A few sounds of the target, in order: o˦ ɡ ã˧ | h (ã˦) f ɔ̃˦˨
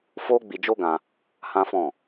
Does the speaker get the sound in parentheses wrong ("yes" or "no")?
no